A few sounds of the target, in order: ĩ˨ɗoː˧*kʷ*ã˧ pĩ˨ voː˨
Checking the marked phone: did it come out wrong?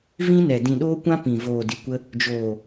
no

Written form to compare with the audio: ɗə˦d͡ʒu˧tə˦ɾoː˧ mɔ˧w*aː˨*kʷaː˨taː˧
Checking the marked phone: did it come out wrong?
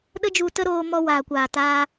no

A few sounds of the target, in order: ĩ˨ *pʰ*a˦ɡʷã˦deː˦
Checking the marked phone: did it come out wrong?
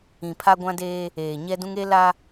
no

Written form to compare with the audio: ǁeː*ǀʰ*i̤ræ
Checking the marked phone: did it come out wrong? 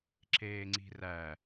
yes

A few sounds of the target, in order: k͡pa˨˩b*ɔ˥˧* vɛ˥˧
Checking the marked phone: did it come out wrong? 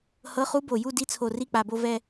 yes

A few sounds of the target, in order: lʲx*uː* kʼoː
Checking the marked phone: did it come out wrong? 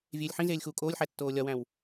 no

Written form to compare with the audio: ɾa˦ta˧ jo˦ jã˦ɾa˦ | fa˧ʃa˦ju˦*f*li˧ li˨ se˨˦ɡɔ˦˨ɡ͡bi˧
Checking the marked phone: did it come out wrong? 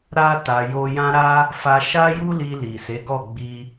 yes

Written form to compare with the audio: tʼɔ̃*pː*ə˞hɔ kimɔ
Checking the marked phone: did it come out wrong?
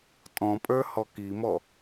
yes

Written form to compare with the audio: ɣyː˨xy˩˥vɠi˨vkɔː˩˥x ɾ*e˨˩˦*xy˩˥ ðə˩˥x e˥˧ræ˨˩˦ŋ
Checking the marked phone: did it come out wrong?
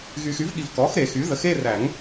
no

